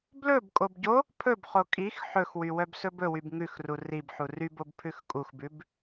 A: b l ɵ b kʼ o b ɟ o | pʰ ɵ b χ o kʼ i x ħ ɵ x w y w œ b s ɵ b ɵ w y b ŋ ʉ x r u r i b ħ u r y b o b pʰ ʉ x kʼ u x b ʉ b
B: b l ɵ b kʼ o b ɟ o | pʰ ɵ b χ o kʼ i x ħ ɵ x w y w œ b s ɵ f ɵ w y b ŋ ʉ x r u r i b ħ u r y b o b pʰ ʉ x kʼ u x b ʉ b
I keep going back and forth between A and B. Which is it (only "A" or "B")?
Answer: A